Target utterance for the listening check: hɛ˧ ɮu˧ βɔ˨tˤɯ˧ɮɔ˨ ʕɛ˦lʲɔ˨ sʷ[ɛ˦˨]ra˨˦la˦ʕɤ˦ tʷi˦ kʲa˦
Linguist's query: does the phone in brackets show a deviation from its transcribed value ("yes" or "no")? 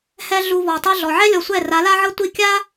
no